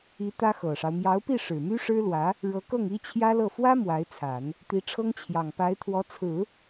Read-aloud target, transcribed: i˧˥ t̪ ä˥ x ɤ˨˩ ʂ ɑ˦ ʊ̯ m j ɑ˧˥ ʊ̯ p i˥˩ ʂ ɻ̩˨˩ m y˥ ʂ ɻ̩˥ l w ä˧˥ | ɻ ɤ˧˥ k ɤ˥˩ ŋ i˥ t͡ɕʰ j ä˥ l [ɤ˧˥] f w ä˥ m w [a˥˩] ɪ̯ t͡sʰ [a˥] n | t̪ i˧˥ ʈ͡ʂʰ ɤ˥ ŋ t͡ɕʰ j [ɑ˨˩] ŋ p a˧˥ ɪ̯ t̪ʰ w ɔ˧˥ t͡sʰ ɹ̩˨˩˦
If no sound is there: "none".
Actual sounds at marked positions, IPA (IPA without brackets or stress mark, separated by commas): ɤ˥˩, a˧˥, a˨˩˦, ɑ˨˩